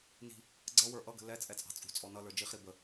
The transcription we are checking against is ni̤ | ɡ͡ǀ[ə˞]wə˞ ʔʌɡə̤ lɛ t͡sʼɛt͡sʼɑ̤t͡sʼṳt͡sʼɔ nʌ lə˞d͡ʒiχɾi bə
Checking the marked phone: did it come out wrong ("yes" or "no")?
yes